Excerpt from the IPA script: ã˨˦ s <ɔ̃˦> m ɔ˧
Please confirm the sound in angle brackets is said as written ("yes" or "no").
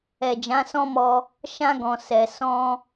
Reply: yes